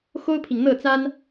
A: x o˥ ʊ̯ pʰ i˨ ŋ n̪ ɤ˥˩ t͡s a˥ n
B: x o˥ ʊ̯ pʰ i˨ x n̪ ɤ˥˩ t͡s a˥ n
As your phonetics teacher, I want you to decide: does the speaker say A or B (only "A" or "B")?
A